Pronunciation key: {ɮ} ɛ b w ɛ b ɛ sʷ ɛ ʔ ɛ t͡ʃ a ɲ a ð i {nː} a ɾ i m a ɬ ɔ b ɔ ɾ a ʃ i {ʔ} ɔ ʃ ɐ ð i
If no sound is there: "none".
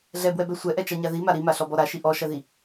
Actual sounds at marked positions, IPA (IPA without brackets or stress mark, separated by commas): ɮ, m, ʔ